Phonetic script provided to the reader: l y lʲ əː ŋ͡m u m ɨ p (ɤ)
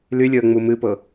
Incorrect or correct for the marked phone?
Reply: correct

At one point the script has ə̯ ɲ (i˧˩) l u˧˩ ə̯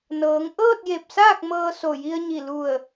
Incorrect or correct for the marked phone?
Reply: correct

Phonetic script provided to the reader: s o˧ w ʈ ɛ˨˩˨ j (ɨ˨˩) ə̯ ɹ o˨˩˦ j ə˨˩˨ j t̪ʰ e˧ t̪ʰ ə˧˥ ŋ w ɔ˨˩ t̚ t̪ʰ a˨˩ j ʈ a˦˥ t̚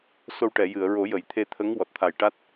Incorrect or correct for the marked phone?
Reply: incorrect: ɨ˨˩˨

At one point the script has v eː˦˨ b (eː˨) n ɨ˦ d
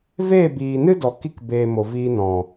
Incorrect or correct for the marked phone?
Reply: incorrect: iː˨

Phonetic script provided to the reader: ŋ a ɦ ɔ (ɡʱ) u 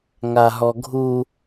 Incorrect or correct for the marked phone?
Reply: correct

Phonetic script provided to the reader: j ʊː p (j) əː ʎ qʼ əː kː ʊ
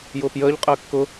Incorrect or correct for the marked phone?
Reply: correct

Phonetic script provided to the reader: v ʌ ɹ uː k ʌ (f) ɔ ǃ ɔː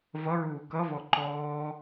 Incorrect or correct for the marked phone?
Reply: incorrect: v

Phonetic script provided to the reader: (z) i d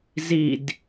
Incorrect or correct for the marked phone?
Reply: correct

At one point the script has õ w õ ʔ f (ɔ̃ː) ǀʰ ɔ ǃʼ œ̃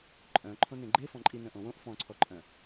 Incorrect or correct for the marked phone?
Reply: incorrect: ɔ̃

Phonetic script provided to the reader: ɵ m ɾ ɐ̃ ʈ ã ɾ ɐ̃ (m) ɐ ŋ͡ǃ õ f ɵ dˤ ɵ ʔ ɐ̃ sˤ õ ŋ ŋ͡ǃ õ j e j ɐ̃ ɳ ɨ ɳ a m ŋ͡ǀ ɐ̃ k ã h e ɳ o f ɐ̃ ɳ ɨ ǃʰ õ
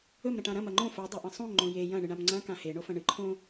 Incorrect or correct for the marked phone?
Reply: correct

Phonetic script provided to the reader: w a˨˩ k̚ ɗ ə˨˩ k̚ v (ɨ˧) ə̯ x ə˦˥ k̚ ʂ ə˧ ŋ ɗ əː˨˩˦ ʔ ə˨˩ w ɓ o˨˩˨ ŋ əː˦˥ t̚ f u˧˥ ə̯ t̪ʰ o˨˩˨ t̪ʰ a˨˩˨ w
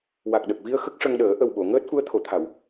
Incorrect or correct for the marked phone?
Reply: incorrect: i˧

